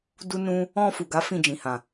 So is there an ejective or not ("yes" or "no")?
no